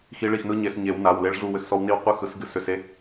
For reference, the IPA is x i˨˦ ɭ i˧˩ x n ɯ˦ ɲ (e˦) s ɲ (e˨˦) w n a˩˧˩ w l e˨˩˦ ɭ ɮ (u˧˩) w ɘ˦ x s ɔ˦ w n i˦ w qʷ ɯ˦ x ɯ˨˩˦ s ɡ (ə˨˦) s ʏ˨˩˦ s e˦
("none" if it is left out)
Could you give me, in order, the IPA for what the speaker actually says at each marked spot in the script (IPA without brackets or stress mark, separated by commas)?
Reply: e˨˩˦, e˨˦, u˧˩, ɨ˨˦